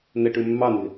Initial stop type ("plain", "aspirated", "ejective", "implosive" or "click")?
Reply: plain